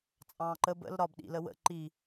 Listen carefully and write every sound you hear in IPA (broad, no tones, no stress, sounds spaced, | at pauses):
t͡sʼ ɑ̃ː ǃ ə b ə̰ l ɾ ɒ b ɗ ḭ l ə w ə̰ ǃ i